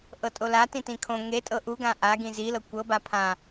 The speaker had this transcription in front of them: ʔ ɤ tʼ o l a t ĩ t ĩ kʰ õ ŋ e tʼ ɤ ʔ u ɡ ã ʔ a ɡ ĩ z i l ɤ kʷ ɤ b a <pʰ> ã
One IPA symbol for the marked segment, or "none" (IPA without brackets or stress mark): pʰ